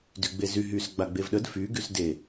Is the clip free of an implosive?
no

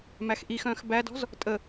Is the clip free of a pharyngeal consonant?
yes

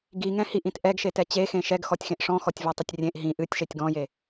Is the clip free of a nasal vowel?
no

